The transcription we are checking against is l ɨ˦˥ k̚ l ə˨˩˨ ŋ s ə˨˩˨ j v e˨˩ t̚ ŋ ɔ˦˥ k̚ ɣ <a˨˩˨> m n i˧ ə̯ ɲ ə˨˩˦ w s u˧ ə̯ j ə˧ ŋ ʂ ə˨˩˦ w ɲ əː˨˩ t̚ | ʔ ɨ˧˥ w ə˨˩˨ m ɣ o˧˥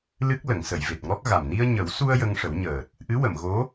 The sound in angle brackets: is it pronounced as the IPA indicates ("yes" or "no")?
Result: no